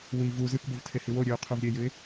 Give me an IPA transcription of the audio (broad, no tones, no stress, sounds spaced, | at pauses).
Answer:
w i v u z ɨ k b o v tʰ e h i w o ɾʲ ʉ ʊ̯ qʰ o v ɾʲ e j ʉ ɪ̯